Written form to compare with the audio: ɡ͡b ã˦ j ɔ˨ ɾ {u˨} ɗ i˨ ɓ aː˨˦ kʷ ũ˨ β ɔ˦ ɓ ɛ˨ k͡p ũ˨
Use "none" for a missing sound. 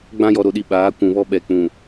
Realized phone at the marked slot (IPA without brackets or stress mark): o˨